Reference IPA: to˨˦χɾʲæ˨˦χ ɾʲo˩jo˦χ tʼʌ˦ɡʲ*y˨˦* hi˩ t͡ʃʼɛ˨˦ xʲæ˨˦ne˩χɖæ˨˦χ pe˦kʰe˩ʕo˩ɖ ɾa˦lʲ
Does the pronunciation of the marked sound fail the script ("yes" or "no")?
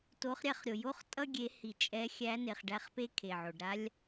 yes